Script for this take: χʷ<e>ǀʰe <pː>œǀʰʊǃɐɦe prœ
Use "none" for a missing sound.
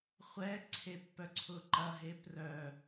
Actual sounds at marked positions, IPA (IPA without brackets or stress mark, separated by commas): ɛ, pː